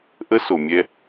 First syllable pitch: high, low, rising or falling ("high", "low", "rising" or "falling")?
high